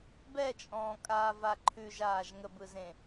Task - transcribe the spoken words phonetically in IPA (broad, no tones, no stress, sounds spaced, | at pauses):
b ɛ t͡ʃʼ ɔ̃ː kʼ aː v a ǃʰ ʉ ʒ aː ʒ ŋ ə b ɯ z ẽ